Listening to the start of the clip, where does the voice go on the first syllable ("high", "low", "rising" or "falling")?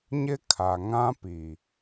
high